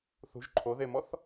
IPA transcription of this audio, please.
θ ṳ ʒ ǃʰ o ð e m ɔ θ

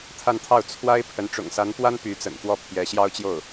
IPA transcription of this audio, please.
t̪ʰ a˥˧ n t̪ʰ ɑ˥˩ ʊ̯ t͡sʰ w a˥ ɪ̯ pʰ ə˧˥ n ʈ͡ʂ ʊ̰˨˩ ŋ s a˧˥ n p w a˥ n p y˧˥ t͡s ə̰˨˩ n f w ɔ˥˩ pʰ j ɛ˧˥ ɕ j ɑ˥ ʊ̯ t͡ɕ j o˥˩ ʊ̯

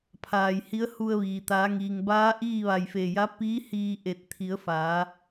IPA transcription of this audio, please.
pʰ aː˧˩ j h i˧˥ ə̯ h u˧ ə̯ ʋ iː˩ t̪ aː˩˧ ŋ iː˩ ŋ b aː˧˥ ʔ iː˥˨ ʋ a˧˩ j f e˧˩ j a˧˥ p iː˧˥ h iː˧ ʔ e˧˩ t̚ t̪ʰ i˩˧ ə̯ f aː˩˧

